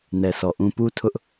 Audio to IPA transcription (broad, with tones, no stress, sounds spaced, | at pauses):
n ɛ˨ sʰ ɔ˨ ʔ ũ˦ p u˦ tʰ ʊ˦ ʔ